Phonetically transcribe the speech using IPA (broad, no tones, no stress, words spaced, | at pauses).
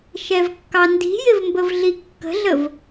ʃɛvkːɑndi̤jɪv mbəvɮikːə̤ɮəv